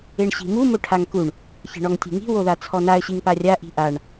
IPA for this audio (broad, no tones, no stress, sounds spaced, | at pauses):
e ɳ ɕ i̤ m u m o ʈʰ a ŋ k u ɳ | ç e̤ ɳ ɔ ŋ tʲ e̤ ŋ i̤ w o ð a t͡sʰ ɔ n a ə̯ ɕ i ŋ p a rʲ a ʔ i̤ ʔ a ɳ